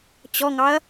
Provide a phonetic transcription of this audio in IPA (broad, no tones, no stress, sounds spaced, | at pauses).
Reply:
t͡ɕ ɔ ŋ ɑ ɐ̯